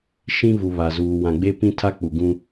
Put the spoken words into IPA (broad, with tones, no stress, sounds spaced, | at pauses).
ʃ ĩ˦ v u˨ β a˨ z uː˨ w ã˨ ɡ͡b e˦ p ĩ˦ tʰ a˦ k͡p u˨ ɡ ũ˦